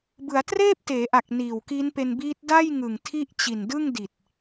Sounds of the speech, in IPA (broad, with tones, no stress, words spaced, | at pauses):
bɯ˩˦a̯treː˥˩p̚teː˩˦ʔa˨˩k̚ niː˨˩wki˦˥npe˧nbiː˦˥t̚ da˥˩jŋɯ˨˩ŋ tʰi˥˩ʔ t͡ɕi˨˩ndɯ˥˩ŋ di˨˩t̚